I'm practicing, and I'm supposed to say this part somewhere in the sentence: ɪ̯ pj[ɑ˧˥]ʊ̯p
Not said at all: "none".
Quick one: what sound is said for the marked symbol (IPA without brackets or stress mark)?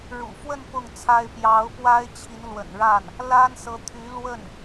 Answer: ɑ˧˥